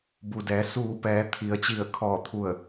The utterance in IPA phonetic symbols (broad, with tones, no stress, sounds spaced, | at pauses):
b u˩ d ɛː˩˧ s uː˧˩ p ɛː˩˧ t̪ʰ i˩ ə̯ t͡ɕ i˧˩ ə̯ kʰ ɔː˧˩ t̪ʰ u˧˩ ə̯